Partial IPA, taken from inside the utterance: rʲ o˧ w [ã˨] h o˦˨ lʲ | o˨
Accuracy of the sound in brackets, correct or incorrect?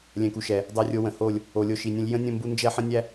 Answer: incorrect